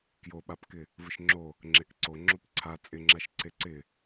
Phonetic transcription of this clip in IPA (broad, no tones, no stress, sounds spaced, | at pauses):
k j o ɓ a p k ɪ | v ə ʃ ŋ͡ǁ o | ŋ͡ǁ e k ǀ o ŋ͡ǁ o p ǀʰ a t͡sʼ ɪ ŋ͡ǁ a ʃ ǀ e ǀ ɪ